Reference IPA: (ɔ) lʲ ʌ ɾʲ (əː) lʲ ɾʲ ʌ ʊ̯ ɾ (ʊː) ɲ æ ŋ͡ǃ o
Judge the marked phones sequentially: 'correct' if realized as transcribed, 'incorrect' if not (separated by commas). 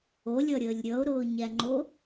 incorrect, correct, correct